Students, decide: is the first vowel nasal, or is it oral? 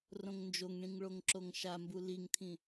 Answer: nasal